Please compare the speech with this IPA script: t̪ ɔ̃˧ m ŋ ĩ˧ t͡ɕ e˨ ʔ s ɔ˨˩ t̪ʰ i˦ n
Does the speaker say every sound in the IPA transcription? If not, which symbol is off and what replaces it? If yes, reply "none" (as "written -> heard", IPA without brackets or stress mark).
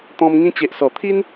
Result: none